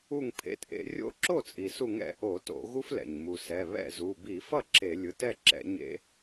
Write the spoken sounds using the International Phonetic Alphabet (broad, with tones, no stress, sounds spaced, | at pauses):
u˧˩ ŋ pʰ ḛ˩˧˩ t ʔ ḛ˧˩˧ rʲ o̰˦ ǁ o˥˩ t͡sʼ i˩ s u˧˩˧ ŋ ɛ̰˧˩˧ ʔ o˧˩˧ t o̰˧˩˧ ɣ u˦ f l ɛ̰˩ ɲ m u˩ s ɛ˩˧˩ β ɛ̰˥˩ z u˩˧˩ b i˧˩˧ f ʌ˥˩ ǁ e˧˩˧ lʲ ɯ˩˧˩ t ɛ˥˩ ǁ ɛ̰˧˩˧ ɲ ḛ˦